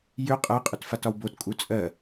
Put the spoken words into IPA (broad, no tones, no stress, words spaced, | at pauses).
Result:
jʏ qʼɜqʼʏtfatɒw botkʼu t͡sʼɜ